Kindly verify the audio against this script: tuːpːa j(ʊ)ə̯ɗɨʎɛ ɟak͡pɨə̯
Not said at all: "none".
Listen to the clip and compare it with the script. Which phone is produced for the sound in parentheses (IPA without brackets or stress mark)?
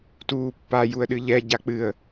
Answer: u